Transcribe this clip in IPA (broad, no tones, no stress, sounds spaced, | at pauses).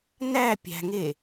n æ pʲ æ̤ ŋ e